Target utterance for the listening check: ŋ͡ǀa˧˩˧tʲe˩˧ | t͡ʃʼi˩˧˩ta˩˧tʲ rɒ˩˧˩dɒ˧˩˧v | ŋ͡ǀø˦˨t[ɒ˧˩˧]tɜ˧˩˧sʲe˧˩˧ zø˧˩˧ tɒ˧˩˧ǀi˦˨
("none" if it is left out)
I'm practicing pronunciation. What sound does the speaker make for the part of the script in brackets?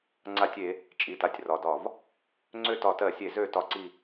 ɒ˧˩˧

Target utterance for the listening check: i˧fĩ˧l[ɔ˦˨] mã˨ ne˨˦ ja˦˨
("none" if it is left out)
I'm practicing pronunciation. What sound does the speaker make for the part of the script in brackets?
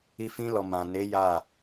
ɔ˨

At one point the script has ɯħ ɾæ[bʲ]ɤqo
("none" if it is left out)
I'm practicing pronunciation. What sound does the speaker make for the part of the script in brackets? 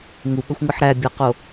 bʲ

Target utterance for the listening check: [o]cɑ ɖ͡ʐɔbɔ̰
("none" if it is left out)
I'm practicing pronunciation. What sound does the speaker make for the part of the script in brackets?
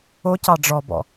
o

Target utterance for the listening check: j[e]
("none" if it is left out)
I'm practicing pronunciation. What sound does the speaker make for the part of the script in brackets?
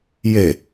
e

